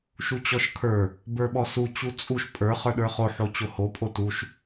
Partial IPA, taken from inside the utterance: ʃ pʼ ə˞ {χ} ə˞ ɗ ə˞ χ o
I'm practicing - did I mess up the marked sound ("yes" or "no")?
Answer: no